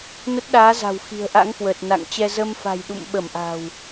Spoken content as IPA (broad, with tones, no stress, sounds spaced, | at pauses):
n ə˦˥ t̚ ɗ aː˨˦ z a̤˨˩ w x i̤˨˩ ə̯ ʔ a̰˧˥ ŋ k w əː˨˩ t̚ n a̰˧˨ ŋ t͡ɕ ɛ˧ z ə˧ m f a̤˨˩ j ɗ ṵ˧˨ m ɓ ə˧˩ m ʔ a̤˨˩ w